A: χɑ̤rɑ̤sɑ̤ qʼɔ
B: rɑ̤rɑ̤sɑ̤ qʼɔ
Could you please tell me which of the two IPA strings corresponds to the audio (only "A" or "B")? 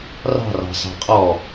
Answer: B